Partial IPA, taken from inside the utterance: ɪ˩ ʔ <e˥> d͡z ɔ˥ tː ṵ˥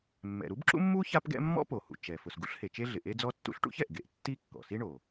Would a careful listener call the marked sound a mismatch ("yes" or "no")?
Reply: no